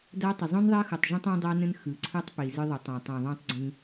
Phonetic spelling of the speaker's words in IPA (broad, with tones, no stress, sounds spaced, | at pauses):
d a˦ tˤ ə˨ zˤ ũ˦ n ðˤ a˦ x u˨ tˤ ʒ ə̃˦ tˤ ã˦ dˤ a˦ n ə̃˦ n x ɯ˨ ǀʰ ɯ˦ tˤ p i˨ z ɨ˦ ðˤ ʏ˨˦ tˤ ã˨ tˤ ũ˨ ðˤ ũ˦ tˤ ɡ͡ǀ ĩ˦